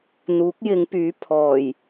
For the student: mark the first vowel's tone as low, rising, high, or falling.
rising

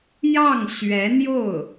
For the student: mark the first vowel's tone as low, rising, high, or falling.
falling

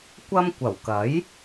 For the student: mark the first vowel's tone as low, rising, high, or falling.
high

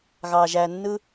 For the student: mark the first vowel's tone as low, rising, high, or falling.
low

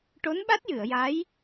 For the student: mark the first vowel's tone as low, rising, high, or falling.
rising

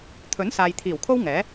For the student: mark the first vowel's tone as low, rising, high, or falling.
rising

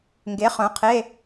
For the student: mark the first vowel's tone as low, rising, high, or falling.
rising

